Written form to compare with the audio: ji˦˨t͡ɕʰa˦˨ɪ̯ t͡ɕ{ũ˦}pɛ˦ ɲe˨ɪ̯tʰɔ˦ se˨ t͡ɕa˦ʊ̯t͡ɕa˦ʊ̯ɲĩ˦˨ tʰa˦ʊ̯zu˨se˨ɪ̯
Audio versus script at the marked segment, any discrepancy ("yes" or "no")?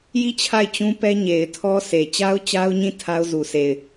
no